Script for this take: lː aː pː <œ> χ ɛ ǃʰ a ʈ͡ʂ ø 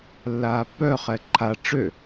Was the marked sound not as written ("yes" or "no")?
no